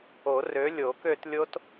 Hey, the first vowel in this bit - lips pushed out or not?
yes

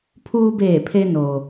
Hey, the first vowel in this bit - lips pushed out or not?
yes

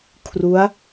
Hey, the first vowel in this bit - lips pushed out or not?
yes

